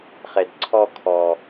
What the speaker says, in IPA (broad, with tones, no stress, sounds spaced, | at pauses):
χ e˨ d ǀʰ ɔ˧ kʰ ɔ˨